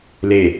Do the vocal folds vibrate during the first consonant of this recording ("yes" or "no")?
yes